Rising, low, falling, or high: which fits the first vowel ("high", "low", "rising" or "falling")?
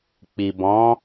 low